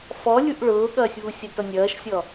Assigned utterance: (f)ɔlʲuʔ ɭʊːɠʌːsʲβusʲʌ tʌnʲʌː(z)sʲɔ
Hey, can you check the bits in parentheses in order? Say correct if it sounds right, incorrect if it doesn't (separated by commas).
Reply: correct, incorrect